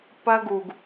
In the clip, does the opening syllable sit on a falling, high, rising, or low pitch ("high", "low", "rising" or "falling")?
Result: high